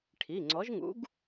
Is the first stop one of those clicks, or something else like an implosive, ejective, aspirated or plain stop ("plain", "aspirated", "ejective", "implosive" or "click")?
aspirated